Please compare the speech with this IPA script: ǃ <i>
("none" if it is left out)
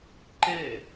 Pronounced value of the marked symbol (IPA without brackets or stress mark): e